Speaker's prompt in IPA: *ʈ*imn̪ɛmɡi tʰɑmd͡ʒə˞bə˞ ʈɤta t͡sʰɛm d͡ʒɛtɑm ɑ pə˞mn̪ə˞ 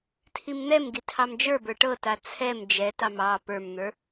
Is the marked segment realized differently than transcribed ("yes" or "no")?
yes